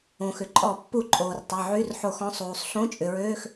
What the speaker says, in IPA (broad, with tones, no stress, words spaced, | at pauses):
õ˩xʏ˩ ǃʼɔ˧˩˧ pːu˧˩˧ ǃʼoː˩rtˤɐ˩˧˩ ʕy˧˥˧rħo˧˩˧x ɔ̃˩˧˩sˤuː˩sˤ ɬõ˧˥˧t͡ʃʼʏ˩ɹøː˧˥˧x